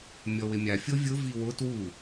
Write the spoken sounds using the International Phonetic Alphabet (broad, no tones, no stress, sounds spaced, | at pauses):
mʲ ɔ w ɪ mʲ a fʲ o vʲ ʊ v i w ʊ t w u